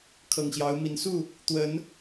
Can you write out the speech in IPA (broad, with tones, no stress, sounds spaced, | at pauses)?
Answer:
kʰ ɤ˨˩ ŋ ɕ j ɑ˨˦ ʊ̯ m i˨˦ n s u˥˨ | t̪ w ə˨˦ n